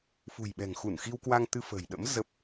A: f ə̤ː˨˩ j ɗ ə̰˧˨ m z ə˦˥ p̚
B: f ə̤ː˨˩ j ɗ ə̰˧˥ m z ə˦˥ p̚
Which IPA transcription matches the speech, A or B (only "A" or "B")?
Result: B